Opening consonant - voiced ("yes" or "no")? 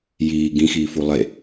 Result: yes